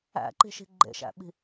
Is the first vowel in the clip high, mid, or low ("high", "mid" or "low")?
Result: low